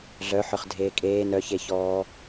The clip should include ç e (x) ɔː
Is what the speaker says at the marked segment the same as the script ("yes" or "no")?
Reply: no